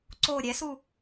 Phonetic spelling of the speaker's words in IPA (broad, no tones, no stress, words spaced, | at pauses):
ǀo ɾʲɛsu